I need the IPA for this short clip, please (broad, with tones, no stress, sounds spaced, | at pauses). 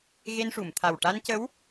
ɣ e˧ n ʂ u˨˩˨ m t̪ʰ a˨˩ w ʈ a˧ n c ə˧˥ w